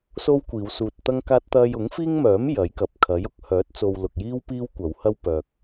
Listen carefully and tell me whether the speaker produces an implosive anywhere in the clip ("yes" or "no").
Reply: no